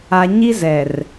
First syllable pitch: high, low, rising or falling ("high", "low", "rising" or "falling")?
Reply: low